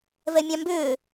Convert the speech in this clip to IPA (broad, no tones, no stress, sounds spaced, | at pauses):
v ɛ mʲ ɑ̃ m b ʏː